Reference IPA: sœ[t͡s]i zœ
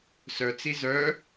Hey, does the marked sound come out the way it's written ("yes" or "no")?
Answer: yes